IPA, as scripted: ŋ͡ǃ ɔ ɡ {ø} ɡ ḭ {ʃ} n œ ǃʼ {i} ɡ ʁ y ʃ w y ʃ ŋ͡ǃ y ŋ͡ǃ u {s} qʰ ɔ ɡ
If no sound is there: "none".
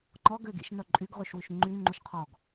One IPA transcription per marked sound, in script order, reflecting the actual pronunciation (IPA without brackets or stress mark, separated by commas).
ø, ʃ, y, ʃ